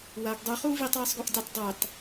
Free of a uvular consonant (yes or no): no